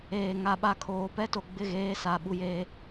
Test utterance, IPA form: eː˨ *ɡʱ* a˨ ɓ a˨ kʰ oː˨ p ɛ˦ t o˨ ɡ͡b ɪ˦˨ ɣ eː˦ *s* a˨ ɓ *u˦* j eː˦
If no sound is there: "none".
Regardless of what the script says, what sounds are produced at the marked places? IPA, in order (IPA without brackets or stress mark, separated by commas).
ŋ, s, u˦